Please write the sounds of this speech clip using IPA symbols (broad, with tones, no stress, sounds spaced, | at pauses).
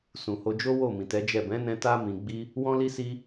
s ũ˨ h o˧ d͡ʒ o˦ w o˦˨ m ĩ˨ t ɛ˨˦ d͡ʒ ɛ˦˨ b ɛ̃˨˦ n ɛ̃˧ t a˦ m ĩ˧ ɡ͡b i˦ | w ɔ̃˦ l i˦ s i˦